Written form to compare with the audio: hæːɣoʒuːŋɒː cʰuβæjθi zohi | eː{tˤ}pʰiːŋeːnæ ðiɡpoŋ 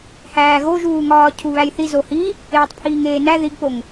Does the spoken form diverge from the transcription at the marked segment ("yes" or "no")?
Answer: no